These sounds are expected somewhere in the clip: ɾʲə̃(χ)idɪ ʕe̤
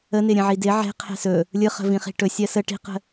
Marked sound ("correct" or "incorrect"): incorrect